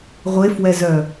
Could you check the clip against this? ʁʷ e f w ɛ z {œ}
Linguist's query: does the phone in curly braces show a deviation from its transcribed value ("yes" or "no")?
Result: no